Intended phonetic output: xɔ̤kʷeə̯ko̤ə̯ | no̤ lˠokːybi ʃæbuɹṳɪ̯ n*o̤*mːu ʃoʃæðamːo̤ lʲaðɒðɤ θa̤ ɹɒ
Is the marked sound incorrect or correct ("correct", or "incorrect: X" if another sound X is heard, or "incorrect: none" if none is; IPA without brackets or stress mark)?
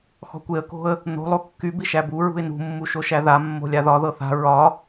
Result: incorrect: ṳ